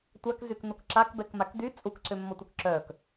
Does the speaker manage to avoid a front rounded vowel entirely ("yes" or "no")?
no